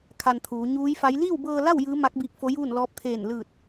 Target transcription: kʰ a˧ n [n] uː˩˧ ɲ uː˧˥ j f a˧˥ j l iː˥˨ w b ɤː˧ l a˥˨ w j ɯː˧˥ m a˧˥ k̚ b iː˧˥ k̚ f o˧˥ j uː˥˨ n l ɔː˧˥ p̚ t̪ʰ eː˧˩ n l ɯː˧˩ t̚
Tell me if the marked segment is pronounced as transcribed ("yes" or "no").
no